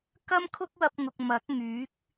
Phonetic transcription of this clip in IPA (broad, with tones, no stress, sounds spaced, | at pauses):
k ɐ˥ m kʰ ʊ˥ k̚ w ɐ˥ p̚ ŋ ʊ˧ k̚ m ɐ˨˥ k̚ ŋ yː˨˥ k̚